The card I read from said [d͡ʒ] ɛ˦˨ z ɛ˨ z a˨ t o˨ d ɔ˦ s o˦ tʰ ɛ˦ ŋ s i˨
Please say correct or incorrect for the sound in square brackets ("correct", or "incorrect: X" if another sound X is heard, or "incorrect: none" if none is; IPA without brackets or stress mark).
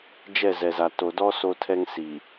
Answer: correct